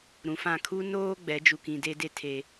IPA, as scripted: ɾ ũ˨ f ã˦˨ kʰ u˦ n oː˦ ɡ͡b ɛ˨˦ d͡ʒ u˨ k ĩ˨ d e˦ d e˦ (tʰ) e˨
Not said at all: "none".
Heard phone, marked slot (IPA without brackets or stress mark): tʰ